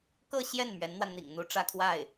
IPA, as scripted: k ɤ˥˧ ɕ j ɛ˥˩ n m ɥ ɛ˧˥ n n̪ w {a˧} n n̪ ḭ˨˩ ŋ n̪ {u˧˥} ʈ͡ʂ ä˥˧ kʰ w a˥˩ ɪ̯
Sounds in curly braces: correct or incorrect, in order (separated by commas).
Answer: correct, correct